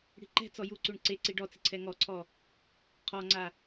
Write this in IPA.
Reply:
ɽi̤ǃɛ̤t͡sɔ juǀuɳ ǀe ǀiɖɔt͡sɪ ǀʰɛŋɔǀʰɔ | qʰɔŋ͡ǀa

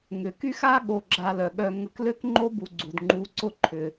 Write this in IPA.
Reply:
ŋʏ˩ky˥x a˥ ɠo˧ɡ͡ǁa˧lœ˩ɠœ˧ ŋə˧klø˥kŋ͡ǃo˥ bu˧ɡ͡ǀu˩dŋ͡ǃu˧ǀʊ˥ ǃʰʏ˩

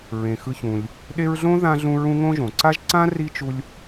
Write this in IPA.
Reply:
ɹẽ˩xɯ˨çũ˩lʲ | ɗe˦ɹɮõ˥ ðã˥ɮũ˦ɹũ˥ ŋõ˥ʒõ˩ ǀa˥ʒ ǀã˥ ri˥t͡ʃu˦lʲ

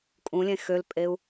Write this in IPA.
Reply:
kʼũlʲẽ xølpʼeu̯

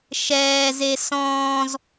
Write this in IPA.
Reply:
ʃɛːze sɔ̃ːz

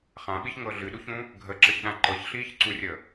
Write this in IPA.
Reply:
χãɓiçŋɤ ɮɨɗuçũ | ɡʱəǁəçɗã ǃɤçɬiːçǀurʲə

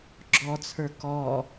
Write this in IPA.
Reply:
ɡ͡ǁɔt͡sʰə˞ kɔ

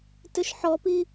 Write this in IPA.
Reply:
tʏʃħɔpi

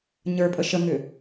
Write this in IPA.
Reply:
ɲə˞pʼə ʃəŋʏ

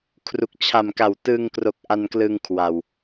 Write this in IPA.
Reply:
kʰru˨˩k̚t͡ɕʰa˨˩mka˨˩w tɯ˧ŋkro˨˩k̚ ʔa˧nklɯ˧ŋ kʰwa˨˩w

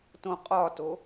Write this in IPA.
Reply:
tõqʼɒto

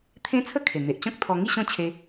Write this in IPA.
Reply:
t̪ʰẽ˦t͡sʰə˥˧kʰe˨˩ n̪e˨ʔt͡ɕɔ̃˦k̚ t̪ʰɔ˧ŋi˥˧ɕɔ̃˥˧ t͡ɕʰe˦

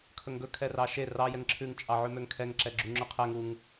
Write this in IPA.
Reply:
kʰɵŋɡɵ kʰɛrɑʃe rɑ jɛŋǁʰʉŋ t͡ʃʼɑʕʉmøŋkʰɛŋ ǁɛɡ͡ǁuŋ͡ǁʉqʰɛŋ uŋ

